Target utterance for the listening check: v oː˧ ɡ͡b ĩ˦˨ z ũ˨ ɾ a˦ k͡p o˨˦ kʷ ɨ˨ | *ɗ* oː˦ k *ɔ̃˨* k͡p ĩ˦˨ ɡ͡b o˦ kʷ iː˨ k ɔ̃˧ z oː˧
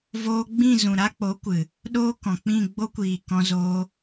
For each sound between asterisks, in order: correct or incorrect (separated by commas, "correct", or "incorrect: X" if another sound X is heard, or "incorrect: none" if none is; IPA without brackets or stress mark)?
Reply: correct, correct